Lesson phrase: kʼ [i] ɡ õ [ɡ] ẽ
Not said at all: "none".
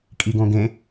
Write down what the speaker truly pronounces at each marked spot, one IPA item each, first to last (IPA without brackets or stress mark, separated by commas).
i, ɡ